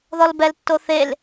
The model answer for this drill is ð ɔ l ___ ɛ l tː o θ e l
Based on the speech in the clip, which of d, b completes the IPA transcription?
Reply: b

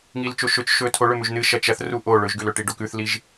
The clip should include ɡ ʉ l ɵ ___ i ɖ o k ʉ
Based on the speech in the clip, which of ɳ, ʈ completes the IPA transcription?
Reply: ʈ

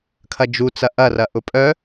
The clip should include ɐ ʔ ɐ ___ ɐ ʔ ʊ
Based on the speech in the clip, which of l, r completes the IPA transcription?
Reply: r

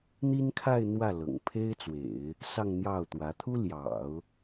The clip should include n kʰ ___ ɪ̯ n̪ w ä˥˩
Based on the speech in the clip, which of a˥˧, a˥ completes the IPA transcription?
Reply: a˥˧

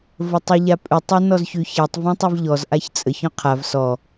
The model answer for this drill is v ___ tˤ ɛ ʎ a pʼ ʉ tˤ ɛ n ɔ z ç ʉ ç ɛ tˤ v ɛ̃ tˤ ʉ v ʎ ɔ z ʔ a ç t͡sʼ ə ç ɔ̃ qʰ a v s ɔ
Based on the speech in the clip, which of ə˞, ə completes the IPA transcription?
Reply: ə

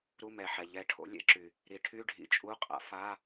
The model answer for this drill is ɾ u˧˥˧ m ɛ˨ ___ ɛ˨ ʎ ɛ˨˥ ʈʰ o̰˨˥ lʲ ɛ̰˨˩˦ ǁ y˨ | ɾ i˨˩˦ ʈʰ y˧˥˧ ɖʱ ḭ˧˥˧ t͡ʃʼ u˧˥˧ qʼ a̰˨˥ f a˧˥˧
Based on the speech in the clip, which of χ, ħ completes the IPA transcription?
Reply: ħ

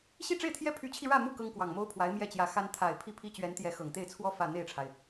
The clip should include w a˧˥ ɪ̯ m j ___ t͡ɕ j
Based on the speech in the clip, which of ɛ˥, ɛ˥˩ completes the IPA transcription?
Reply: ɛ˥˩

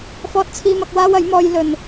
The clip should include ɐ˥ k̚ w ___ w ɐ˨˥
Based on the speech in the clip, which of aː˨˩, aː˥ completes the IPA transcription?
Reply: aː˥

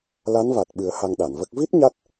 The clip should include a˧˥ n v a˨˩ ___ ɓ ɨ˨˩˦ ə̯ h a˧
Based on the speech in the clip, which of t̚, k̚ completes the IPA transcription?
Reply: t̚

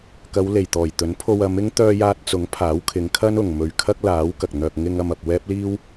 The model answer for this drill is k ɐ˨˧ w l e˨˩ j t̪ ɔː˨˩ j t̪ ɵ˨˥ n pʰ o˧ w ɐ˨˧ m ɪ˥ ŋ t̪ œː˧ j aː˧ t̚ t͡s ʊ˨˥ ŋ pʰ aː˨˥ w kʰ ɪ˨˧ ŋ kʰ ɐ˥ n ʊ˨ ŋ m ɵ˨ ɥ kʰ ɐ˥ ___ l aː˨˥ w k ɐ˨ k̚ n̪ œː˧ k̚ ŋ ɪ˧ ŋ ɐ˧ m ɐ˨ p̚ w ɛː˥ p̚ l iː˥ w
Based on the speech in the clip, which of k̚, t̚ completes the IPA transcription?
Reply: k̚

